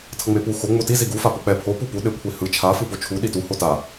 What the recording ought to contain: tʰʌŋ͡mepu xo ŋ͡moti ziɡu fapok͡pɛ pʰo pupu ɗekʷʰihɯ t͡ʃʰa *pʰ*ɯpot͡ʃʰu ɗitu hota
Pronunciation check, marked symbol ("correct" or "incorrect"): incorrect